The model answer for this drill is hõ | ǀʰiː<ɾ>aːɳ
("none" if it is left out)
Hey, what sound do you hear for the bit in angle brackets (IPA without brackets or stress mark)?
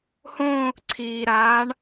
ɾ